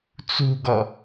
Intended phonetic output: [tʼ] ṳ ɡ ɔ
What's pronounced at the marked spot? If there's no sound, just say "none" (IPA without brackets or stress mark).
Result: t͡s